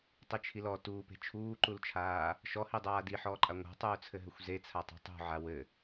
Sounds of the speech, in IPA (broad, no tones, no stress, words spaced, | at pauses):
tˤit͡ʃʰilɔ tuːpe̤ t͡ʃʰuːǃult͡ʃʰaː | ʃɔhidˤaː diħɔːǃʼa ŋʷa̤tˤuːt͡sʰɘɦɘxʷ zet͡sʰatˤe̤ tˤṳ ʕawɘ